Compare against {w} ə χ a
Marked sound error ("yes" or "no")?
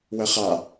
no